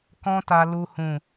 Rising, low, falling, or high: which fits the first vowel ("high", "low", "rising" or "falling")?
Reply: high